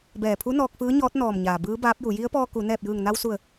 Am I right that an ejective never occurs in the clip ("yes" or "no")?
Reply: yes